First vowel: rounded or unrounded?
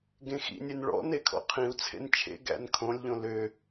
unrounded